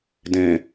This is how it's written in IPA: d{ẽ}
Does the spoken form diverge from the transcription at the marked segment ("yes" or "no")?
no